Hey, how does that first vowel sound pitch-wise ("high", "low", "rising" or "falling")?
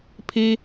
high